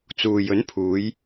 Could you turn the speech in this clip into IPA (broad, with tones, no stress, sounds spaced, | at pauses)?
t͡s uː˨ j ɵ˨˥ n pʰ uː˨˧ j